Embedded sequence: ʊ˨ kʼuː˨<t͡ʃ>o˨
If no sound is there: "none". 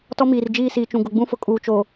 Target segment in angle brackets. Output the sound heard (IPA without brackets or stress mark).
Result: t͡ʃ